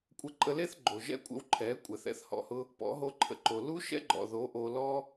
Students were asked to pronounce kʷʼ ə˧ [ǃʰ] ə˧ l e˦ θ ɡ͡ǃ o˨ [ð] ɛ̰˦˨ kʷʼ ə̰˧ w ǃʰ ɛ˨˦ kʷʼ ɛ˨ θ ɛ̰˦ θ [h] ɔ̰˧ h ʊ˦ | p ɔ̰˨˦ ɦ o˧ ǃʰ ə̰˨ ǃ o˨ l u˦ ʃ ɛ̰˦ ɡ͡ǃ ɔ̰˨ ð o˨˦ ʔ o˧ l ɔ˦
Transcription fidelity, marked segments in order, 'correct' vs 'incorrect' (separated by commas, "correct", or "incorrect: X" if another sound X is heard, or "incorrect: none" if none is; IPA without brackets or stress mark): incorrect: ǃʼ, incorrect: ʒ, correct